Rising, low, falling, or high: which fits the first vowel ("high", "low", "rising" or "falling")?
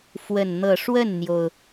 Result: falling